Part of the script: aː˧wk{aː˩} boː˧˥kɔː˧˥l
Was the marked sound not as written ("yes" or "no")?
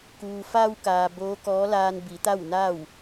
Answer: no